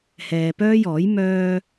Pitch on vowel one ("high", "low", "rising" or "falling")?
low